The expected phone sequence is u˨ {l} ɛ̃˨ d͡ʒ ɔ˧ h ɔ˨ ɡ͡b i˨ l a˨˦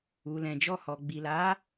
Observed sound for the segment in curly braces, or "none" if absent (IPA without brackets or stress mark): l